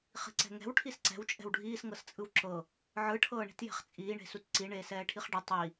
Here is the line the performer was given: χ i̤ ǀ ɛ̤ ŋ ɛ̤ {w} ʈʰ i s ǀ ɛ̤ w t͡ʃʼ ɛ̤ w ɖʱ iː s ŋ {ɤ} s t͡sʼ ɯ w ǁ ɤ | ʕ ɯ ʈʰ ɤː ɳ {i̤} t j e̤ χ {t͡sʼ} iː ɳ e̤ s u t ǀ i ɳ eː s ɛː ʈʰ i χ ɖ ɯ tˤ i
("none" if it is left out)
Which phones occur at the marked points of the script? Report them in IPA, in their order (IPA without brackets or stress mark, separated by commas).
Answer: w, ɤ, i̤, t͡sʼ